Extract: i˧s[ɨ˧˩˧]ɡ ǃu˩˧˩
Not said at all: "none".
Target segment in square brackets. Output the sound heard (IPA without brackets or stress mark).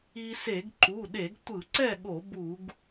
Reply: e˧˩˧